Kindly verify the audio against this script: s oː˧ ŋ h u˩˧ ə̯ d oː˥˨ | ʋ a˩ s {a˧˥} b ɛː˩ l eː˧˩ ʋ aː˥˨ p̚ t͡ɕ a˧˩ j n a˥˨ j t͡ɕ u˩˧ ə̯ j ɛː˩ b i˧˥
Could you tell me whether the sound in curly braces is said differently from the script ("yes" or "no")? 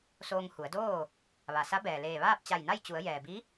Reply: no